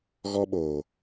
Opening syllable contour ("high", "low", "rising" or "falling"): high